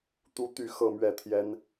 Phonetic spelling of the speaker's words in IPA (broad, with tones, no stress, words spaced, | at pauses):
t̪u˥t̪y˥˧ xɤ˥˧mɥɛ˥˩ t̪ʰjɛ˥n